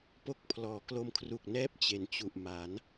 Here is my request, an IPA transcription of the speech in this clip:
po˥˩k̚ pʰlɔː˩˦klo˧mkʰru˨˩k̚nɛː˥˩p̚ t͡ɕe˨˩nt͡ɕu˨˩ʔ ma˩˦n

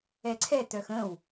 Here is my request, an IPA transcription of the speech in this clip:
ɛǀʰɛ tœxə̃w

